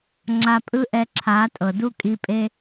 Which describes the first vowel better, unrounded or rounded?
unrounded